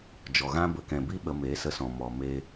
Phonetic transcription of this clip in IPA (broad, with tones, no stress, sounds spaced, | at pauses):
d͡ʒ ɔ˨ ɣ ã˦ b ə˨ k ɛ̃˨ b i˦ ɓ ə˧ m e˨˦ s ə˧ s ɔ̃˨ m ɔ˨ m e˧